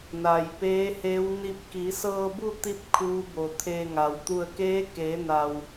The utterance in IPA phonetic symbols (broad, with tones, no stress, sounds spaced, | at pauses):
n a˩ j p eː˧˥ h e˧˥ w n i˧ p̚ k i˩˧ s ɤː˧ b u˥˨ t̪ i˧ p̚ kʰ uː˧˥ b o˩ t̪ʰ e˧ ŋ a˩ w t̪ u˧˩ ə̯ k eː˧˥ k eː˩˧ n a˩ w